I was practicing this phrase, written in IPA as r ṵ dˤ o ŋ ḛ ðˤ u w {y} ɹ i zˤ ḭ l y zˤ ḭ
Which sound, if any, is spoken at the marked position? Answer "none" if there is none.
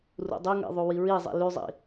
i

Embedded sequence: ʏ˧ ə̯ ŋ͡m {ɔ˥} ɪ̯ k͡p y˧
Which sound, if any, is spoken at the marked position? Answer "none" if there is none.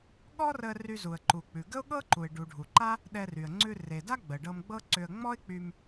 ɔ˥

